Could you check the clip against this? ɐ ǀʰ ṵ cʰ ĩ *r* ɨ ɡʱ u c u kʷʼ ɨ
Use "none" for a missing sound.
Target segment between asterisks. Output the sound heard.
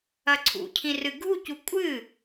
r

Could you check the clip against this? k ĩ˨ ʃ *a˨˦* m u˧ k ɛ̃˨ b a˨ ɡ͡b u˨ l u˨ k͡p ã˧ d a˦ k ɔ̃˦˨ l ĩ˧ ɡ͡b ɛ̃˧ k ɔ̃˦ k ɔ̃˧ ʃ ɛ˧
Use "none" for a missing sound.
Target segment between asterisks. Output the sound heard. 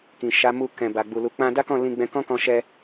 a˨˦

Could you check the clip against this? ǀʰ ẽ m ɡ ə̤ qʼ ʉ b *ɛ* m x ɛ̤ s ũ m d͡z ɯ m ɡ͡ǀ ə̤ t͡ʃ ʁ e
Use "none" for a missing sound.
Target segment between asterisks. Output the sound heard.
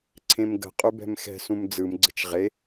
ɛ̤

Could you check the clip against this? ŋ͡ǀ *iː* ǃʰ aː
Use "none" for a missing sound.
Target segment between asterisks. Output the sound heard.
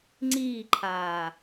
iː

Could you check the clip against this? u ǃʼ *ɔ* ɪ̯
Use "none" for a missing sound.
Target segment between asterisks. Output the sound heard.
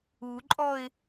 ɔ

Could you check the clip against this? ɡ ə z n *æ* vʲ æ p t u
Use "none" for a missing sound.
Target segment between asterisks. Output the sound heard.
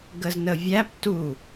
ə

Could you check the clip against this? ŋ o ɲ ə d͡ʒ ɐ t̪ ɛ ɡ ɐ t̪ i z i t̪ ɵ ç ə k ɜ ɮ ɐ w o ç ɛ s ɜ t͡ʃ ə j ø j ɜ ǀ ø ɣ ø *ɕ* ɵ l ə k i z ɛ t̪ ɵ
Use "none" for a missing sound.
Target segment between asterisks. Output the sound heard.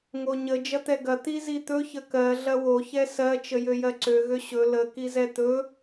ɕ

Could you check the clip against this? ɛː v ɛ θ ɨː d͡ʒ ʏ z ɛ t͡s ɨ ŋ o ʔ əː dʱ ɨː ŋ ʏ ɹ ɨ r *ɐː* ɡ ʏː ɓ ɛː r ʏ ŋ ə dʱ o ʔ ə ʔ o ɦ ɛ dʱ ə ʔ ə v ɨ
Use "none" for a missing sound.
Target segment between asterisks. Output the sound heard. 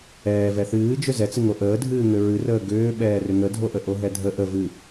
əː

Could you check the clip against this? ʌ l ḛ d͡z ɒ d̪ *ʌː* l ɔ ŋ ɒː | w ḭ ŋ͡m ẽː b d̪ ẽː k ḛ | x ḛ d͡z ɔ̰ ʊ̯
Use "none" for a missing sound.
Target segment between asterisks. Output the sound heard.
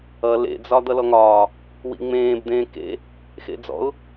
ʌ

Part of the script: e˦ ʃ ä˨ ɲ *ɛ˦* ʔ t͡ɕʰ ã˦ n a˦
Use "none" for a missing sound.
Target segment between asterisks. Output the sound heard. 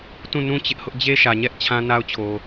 ɛ˦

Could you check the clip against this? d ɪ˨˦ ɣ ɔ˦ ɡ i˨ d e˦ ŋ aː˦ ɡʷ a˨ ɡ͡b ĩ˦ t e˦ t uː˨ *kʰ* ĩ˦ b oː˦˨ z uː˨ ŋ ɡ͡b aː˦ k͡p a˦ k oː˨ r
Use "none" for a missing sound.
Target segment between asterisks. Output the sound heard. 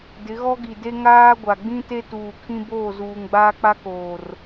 kʰ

